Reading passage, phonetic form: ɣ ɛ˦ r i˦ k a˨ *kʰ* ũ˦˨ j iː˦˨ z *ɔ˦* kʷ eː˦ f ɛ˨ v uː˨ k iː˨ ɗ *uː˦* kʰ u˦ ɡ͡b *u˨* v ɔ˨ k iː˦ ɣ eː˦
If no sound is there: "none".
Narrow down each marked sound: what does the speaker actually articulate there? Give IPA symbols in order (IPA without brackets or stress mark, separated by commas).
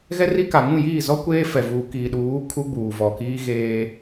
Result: ŋ, ɔ˦, uː˨˦, uː˨